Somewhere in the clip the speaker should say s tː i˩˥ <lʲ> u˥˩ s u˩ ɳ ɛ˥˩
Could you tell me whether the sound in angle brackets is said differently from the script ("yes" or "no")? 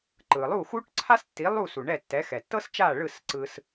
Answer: yes